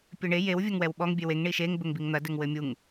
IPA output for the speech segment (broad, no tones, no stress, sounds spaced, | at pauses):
pʲ ɘ ɳ e j e w vʲ ɐ ŋ w ɛ w ɓ ɔ ŋ bʲ e w e ŋ ɳ i ʃ e ŋ b ɘ ŋ b i ŋ n̪ ɐ d ɘ ŋ w ɘ mʲ u ŋ